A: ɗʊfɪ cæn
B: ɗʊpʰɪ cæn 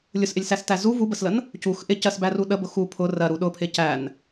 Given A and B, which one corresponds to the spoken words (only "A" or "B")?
B